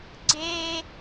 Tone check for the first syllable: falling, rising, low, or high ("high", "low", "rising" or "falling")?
high